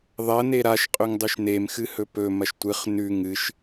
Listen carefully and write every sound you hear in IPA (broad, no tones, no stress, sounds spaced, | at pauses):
ðˤ ɐ n e ɾ a ʃ qʼ ɵ ŋ dˤ ʉ ʃ n e m x ɨ h ɵ p ɵ m ɐ ʃ tʷ ɨ χ n ʉ ŋ ɨ ʃ